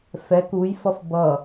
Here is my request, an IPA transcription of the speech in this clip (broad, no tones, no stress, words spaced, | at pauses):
fɛk ujfʌf bʌ